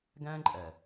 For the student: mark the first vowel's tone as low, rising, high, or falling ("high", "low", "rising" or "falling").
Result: high